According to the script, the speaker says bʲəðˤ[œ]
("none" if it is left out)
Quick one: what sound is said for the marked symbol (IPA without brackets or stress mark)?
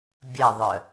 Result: œ